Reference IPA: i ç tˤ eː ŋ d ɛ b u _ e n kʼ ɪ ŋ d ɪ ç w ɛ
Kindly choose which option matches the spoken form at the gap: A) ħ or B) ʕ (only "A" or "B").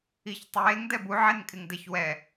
B